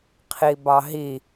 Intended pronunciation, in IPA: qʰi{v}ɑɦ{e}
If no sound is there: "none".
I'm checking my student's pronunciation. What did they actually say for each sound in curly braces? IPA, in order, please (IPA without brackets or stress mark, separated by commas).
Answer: b, i